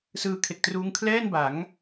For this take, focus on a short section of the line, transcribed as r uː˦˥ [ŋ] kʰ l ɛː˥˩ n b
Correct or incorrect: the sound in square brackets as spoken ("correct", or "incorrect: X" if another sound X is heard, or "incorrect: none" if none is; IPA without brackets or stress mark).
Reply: correct